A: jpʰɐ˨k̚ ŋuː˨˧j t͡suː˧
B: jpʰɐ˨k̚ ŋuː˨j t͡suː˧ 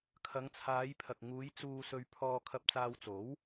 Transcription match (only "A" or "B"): A